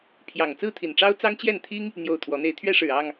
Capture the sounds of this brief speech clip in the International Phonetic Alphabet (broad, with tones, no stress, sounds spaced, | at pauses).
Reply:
pʰ j ɑ˨˩ ŋ t͡s ɹ̩˥˨ t̪ʰ i˨˩ n ʈ͡ʂ ɑ˦ ʊ̯ t͡s ɑ˦ ŋ t͡ɕ j ɛ˥˨ n t̪ʰ i˦ ŋ | n̪ j o˥˨ ʊ̯ t̪ʰ w ɔ˨˦ n̪ e˨˦ ɪ̯ t̪ʰ ɥ ɛ˦ ʂ ɻ̩˨˩ ɑ˥˨ ŋ